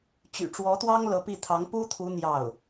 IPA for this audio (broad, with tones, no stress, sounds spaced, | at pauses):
t͡ɕ y̰˨˩ ʈ͡ʂ w ɔ˧˥ t̪ w ɑ˥ ŋ l ɤ˧˥ p i˥˩ t̪ʰ ɑ˧˥ ŋ p u˥ t̪ʰ u˧˥ n̪ j ɑ˥˩ ʊ̯